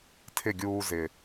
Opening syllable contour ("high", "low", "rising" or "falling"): falling